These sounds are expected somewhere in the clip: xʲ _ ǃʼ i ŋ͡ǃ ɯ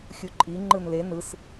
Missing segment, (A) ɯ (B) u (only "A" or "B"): B